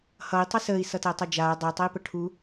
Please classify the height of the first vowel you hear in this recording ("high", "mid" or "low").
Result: mid